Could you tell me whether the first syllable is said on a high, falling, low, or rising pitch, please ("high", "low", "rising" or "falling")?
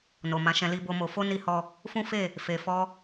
low